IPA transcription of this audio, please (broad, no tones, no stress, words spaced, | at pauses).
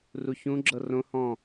ruçũɡ͡ǁɤ rõ hɔ̃